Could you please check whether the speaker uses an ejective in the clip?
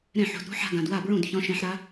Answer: no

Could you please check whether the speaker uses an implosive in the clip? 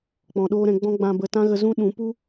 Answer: yes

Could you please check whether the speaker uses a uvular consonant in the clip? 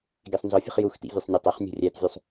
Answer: yes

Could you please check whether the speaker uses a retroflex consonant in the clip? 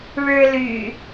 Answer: yes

